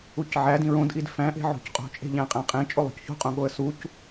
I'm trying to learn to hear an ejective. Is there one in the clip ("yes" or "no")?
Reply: yes